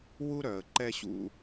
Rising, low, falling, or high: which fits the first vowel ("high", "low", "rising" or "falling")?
high